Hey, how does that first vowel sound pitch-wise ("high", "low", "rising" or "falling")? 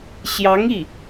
rising